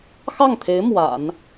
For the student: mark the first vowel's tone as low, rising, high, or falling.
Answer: falling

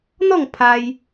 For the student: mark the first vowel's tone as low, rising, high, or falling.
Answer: falling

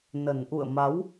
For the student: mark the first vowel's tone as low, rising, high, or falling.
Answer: low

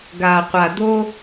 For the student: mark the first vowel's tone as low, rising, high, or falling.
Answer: low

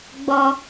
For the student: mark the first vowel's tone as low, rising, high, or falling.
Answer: high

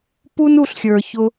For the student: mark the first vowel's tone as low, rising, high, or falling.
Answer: high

